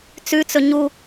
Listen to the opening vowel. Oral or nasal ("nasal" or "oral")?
oral